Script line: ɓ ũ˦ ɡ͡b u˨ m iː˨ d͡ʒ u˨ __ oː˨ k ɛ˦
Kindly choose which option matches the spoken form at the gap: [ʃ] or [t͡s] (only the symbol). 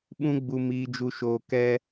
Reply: ʃ